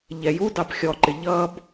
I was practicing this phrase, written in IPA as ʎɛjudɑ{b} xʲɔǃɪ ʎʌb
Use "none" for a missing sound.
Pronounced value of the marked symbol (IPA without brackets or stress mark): b